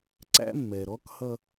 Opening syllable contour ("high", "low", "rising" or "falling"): high